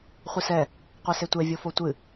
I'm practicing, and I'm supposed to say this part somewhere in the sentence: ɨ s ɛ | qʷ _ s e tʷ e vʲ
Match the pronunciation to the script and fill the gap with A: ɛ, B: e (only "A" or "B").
B